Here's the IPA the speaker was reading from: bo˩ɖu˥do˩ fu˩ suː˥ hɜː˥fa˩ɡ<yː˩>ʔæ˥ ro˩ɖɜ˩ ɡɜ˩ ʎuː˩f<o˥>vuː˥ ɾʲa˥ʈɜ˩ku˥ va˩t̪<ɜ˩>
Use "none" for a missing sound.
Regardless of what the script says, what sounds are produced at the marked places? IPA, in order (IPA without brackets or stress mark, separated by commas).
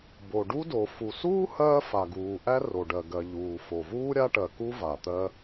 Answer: uː˩, o˩, ɜ˥